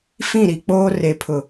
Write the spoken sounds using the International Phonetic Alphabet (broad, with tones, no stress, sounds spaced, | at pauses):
f ĩ˦˨ ɾ i˨ k͡p oː˦ r e˨ pʰ ʊ˨